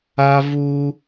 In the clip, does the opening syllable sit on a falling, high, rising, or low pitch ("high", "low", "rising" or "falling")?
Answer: high